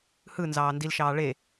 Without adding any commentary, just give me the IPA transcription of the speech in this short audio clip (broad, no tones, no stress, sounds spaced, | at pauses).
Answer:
h ɯ n z ɑː n d i l ʃ ɑː ɭ e